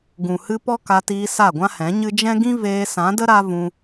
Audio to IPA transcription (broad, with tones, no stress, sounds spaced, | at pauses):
ɡ ũ˨ h ɨ˧ p ɔ˦ k a˧ t iː˧ s a˦˨ ɡʷ ã˦ h ɛ̃˨˦ ɲ ɨ˦ d͡ʒ ɛ̃˦ ɡ ĩ˦ v eː˧ s ã˨˦ d ə˦ ɾ a˦ v ũ˧